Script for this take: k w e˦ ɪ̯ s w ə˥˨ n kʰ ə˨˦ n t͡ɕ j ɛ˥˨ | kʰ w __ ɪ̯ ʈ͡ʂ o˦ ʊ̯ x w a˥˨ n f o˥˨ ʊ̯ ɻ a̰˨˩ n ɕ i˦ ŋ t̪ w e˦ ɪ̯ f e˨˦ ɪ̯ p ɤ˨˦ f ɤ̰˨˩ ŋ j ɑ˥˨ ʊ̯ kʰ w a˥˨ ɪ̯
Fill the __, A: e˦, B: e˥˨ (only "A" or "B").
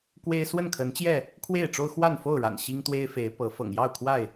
B